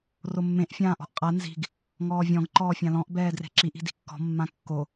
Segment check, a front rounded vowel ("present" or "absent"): absent